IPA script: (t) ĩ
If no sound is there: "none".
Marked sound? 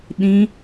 ɗ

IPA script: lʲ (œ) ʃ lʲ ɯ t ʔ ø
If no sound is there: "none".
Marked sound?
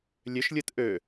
ø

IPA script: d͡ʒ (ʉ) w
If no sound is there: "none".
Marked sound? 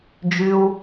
ʉ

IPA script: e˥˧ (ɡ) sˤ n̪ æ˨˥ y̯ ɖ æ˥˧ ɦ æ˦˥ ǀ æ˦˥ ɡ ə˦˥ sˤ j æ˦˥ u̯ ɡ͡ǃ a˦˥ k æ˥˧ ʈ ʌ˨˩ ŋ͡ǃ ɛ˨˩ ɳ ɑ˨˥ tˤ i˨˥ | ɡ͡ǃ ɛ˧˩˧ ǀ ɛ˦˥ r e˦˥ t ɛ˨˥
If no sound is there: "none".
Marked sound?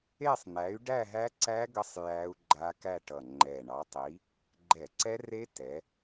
none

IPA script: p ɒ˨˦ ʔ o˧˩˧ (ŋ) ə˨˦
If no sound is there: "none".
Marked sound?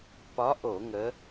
ŋ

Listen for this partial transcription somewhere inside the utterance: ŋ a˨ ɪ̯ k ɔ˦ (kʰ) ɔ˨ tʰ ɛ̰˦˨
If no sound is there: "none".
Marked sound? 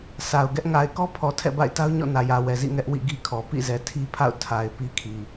pʰ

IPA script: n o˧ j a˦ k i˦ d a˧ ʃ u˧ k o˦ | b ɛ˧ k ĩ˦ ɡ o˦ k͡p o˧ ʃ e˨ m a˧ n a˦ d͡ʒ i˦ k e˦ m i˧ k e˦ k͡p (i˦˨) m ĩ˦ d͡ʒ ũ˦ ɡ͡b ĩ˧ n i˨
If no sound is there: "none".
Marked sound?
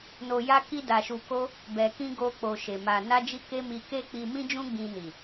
i˧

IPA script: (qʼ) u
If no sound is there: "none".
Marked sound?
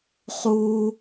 χ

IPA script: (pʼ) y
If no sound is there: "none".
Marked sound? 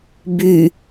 b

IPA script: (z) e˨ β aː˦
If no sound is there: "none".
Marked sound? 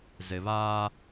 z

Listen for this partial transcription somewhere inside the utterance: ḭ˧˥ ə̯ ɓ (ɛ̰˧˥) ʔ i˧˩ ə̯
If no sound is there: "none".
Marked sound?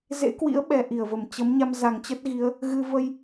ɛ˧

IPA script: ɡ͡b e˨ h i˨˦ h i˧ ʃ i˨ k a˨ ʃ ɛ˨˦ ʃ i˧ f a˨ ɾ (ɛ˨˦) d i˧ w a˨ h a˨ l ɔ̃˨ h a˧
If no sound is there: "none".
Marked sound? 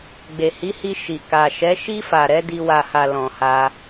ɛ˨˦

